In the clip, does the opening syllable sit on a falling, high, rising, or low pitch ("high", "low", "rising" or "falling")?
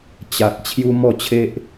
low